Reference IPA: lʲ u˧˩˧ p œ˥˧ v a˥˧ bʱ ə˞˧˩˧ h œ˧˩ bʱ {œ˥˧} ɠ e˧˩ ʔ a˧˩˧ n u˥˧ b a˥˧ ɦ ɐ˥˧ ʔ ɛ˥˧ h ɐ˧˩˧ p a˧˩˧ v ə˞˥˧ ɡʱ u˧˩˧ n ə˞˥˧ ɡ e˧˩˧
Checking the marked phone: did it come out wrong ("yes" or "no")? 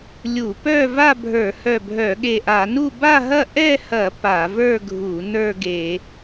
yes